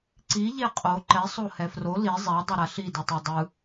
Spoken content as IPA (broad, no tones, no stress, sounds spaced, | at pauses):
ǀ i ʎ e qʼ o ǃ ɛ sˤ o h ɛ f r o l i zˤ ɛ dˤ ɛ ɾ a ɬ i d ɯ tˤ o dˤ ɯ